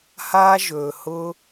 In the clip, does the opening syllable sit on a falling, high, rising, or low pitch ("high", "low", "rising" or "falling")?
high